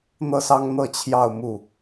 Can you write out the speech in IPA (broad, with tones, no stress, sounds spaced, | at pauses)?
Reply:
n̪ ɤ˥˩ s ɑ˥ ŋ n̪ ɤ˥˧ t͡ɕʰ j ɑ˥˧ ʊ̯ m u˥˩